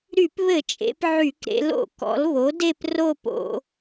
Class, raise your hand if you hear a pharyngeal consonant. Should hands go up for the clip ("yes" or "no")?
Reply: yes